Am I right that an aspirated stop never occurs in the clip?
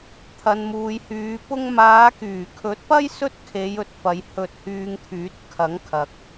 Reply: no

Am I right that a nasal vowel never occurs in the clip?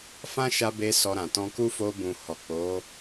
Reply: no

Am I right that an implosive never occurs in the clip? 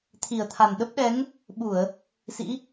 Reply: no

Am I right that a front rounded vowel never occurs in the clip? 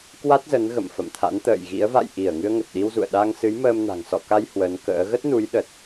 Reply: yes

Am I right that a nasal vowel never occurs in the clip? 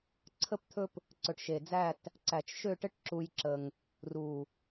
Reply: yes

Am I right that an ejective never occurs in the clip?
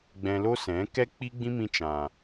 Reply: yes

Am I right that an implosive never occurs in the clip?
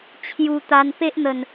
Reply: yes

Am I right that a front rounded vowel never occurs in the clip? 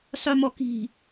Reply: no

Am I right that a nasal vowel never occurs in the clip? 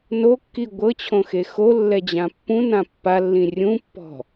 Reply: no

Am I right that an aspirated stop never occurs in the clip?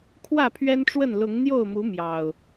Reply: no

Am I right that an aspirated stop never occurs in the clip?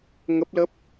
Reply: yes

